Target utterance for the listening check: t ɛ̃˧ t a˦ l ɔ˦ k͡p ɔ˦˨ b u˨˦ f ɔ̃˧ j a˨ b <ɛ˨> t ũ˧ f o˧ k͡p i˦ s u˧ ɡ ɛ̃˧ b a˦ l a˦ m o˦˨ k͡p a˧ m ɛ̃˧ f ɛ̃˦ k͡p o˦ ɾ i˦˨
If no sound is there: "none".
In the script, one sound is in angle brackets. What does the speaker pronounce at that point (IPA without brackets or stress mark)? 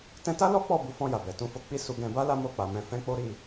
ɛ˨